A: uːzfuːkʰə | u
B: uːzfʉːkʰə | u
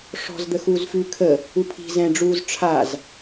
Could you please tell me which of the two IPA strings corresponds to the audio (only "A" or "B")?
B